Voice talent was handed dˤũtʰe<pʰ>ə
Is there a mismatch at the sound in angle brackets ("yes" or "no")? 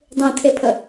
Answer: no